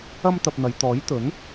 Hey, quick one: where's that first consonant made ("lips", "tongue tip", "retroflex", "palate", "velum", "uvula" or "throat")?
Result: lips